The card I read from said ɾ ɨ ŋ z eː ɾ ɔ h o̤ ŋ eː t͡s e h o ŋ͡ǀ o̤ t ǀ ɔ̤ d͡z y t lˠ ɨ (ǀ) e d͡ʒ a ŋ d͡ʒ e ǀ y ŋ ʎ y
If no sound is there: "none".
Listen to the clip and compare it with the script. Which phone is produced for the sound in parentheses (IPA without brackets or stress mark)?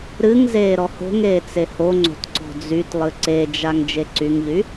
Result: ǀ